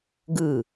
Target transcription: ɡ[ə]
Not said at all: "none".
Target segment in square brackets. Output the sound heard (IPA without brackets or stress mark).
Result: ɯ